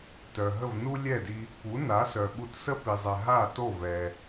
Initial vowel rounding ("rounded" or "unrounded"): rounded